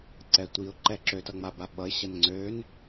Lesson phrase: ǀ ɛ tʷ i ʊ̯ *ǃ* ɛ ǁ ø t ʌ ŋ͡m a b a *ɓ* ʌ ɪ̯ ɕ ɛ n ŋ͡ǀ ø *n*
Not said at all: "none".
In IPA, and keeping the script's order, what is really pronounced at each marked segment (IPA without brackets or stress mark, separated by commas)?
ǃ, ɓ, n